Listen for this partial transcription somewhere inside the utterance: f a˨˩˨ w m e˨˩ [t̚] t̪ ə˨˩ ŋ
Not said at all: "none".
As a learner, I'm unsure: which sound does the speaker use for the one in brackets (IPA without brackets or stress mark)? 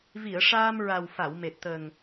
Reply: t̚